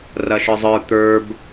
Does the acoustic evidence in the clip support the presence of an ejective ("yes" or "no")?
no